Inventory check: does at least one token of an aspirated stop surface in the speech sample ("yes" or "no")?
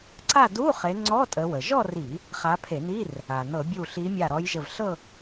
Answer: yes